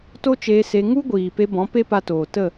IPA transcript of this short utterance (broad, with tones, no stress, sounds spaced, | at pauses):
t o˦ t͡ʃ eː˧ s e˧ ŋ u˦ ɡʷ iː˨ p e˧ b ɔ̃˨˦ p e˦ p a˧ t oː˨ t ə˦˨